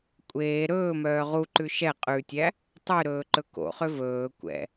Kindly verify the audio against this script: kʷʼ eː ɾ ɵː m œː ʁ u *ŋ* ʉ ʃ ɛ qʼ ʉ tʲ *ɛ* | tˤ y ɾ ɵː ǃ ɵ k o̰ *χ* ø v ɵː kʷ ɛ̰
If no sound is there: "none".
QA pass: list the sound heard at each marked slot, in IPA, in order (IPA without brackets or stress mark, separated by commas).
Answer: ǃ, æ, χ